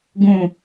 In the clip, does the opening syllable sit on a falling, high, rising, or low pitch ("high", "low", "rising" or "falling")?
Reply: falling